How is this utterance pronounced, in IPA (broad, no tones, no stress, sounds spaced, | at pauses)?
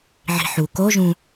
ʕ i̤ ħ u k o ʒ ũ